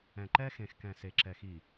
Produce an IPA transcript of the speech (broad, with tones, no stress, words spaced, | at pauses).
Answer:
ɛ̃˨ǃɛː˦xẽ˨xkɛ̃ː˨ se˨ǁɛ˨ xiː˨